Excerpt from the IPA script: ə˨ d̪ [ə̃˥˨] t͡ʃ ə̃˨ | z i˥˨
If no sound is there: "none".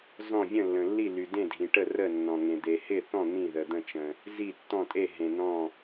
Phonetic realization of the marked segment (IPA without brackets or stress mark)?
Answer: ə̃˥˨